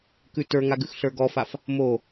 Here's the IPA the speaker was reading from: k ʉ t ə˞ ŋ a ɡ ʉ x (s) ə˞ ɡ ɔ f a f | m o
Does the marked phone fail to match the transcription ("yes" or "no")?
yes